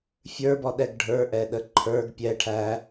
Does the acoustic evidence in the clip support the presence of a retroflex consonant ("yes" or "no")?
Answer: yes